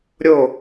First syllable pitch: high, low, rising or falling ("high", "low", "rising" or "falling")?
falling